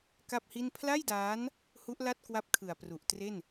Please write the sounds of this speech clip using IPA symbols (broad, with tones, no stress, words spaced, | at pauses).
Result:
ka˥˩p̚hi˥˩n pʰla˥˩jdaː˦˥n | hu˦˥ʔla˥˩t̚ kwa˦˥p̚kʰɯ˨˩a̯pru˨˩ʔ tre˥˩n